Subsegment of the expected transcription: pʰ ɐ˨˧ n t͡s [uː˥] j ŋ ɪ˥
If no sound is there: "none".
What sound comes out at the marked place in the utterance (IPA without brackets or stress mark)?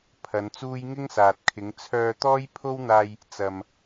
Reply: uː˥